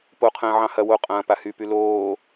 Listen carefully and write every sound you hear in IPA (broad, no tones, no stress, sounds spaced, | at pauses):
p o qʰ ə̃ː ʕ ɑ̃ h ɐ w o qʼ ɐ̃ː p a h y p y l oː